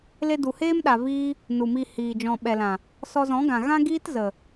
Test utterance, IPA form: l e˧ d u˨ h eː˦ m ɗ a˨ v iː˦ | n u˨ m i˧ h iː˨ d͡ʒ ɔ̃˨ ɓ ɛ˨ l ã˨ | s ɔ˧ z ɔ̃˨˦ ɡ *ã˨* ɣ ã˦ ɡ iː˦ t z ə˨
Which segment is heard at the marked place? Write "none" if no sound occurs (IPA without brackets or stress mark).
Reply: ã˨